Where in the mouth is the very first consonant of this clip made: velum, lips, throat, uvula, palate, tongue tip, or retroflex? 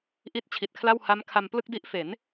throat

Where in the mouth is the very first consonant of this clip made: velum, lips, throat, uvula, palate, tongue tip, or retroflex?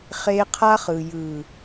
uvula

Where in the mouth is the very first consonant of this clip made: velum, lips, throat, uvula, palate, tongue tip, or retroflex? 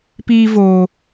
lips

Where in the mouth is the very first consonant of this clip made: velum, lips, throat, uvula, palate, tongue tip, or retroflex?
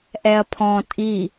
throat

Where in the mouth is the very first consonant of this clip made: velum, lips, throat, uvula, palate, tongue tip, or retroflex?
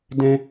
tongue tip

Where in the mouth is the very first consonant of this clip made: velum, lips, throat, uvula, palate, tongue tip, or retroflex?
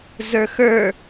tongue tip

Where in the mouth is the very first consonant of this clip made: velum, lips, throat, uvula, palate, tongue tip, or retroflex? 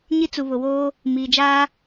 palate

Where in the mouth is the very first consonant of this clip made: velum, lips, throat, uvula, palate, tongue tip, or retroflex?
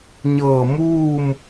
palate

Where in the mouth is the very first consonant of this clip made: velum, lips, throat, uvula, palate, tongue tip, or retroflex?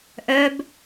throat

